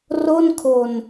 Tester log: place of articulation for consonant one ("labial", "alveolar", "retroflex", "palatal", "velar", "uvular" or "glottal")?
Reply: alveolar